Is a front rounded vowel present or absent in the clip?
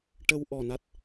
absent